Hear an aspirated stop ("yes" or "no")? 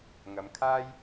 yes